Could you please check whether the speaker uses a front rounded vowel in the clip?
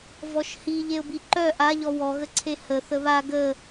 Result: yes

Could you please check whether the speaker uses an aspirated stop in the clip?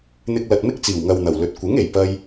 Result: no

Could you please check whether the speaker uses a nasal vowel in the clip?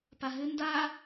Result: no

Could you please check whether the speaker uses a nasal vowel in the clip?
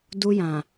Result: yes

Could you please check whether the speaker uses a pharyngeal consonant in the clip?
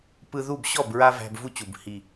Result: no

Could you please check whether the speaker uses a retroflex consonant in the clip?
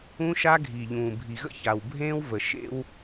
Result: no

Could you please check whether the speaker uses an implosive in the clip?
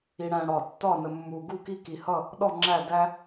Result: yes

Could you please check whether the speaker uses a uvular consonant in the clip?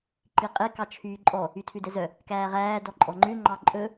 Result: yes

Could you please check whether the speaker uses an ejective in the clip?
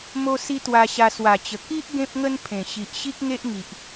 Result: no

